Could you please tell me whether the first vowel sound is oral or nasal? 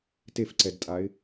oral